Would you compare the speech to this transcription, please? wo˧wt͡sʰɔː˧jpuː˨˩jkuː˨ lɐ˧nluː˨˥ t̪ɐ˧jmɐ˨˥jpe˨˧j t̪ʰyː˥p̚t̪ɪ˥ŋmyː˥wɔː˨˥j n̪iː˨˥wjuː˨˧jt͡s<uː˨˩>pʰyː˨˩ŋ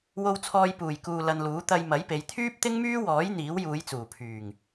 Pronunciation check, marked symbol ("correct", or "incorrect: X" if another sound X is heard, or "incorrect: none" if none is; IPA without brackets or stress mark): correct